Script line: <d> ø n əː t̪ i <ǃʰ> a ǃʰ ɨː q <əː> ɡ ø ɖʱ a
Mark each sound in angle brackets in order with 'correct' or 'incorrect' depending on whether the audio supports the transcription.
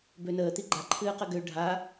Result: incorrect: b, incorrect: ɡ͡ǃ, incorrect: ə

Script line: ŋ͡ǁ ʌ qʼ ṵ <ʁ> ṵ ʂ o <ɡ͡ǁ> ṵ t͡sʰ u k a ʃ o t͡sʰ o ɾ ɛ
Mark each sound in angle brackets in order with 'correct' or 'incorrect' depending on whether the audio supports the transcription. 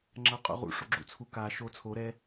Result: correct, correct

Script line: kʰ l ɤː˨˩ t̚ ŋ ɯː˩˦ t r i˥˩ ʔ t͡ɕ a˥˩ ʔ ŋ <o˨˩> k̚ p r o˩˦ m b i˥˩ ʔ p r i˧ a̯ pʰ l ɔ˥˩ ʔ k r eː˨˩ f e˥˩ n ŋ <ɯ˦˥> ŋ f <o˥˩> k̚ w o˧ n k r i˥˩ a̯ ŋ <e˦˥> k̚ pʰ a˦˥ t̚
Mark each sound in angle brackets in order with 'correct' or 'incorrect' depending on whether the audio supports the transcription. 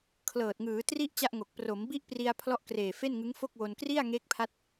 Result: correct, correct, correct, correct

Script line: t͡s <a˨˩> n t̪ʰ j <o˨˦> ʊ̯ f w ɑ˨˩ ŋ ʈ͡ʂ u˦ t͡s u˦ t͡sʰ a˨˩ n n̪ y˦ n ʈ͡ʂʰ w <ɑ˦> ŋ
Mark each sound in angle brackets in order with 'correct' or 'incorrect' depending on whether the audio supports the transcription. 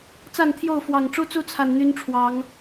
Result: incorrect: a˥˨, incorrect: o˥˨, incorrect: ɑ˨˦

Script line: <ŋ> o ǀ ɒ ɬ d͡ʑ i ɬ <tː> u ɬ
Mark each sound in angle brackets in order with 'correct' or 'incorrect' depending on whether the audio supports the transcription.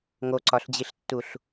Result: correct, correct

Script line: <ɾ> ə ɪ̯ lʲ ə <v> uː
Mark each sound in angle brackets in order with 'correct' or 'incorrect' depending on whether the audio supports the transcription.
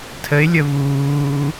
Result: incorrect: tʰ, correct

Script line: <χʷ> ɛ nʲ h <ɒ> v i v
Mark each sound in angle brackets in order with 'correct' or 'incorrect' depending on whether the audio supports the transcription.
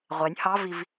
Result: incorrect: ʁʷ, incorrect: ɑ

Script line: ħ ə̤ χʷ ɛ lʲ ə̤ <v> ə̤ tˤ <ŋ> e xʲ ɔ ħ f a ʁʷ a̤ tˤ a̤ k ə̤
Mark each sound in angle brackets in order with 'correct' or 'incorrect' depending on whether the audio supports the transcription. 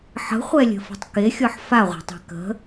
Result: incorrect: f, incorrect: k

